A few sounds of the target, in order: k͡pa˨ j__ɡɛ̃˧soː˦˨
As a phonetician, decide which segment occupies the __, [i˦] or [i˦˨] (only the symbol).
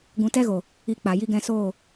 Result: i˦